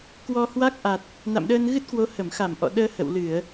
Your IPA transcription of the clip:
k w ɔ˧ h w a˦˥ k̚ ʔ a˨˩ t̚ | n a̰˧˨ m ɗ əː˧ n ɣ ɨ˦˥ t̚ k w o˨˦ h ə˧˩ m x a˧˩ m ʔ ɔ̰˧˨ ɗ əː˧ h ə̰˧˨ w l ɨ˧˩˨ ə̯

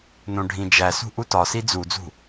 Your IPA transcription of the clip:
n õ ɖʱ ĩ d͡ʒ æ s ṳ ʔ u t ɒ s i d͡z u d͡z ṳ

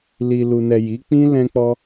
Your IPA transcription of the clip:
l i˨ l u˨ n ɛ˨ j i˨˦ k͡p ĩ˦ l ɛ̃˧ k͡p ɔ˧

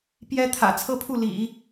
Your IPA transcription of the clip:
p j ɛ˥ t̪ʰ ä̰˨˩ t͡sʰ ɤ˥ pʰ u˥˩ l ḭ˨˩˦

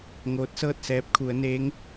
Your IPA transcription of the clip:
ŋ oː˧˥ t̚ s ɤː˥˨ t̚ s ɛː˧˥ p̚ kʰ u˩˧ ə̯ n eː˧˥ ŋ

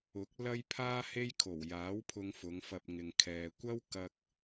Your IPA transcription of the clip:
ʊ˨˥ k̚ l ɐ˥ j pʰ aː˥ h e˥ j kʰ o˨˩ w j aː˨˥ w pʰ ʊ˧ ŋ f ʊ˨˧ ŋ f ɐ˧ p̚ ŋ ɪ˧ ŋ kʰ ɛː˧ kʷ ɐ˥ w k ɐ˧ k̚

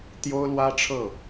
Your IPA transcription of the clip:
t̪ j o˥ ʊ̯ l w ä˥ ʈ͡ʂʰ ɤ˥˩

